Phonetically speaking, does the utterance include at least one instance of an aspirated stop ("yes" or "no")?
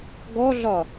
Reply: no